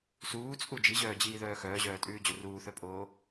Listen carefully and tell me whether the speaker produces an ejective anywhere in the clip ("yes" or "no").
yes